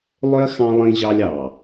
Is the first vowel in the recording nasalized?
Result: no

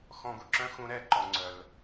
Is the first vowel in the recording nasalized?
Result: yes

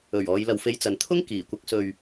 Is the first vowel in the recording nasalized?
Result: no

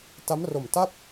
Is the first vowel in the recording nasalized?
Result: no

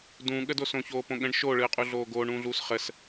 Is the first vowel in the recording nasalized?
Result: yes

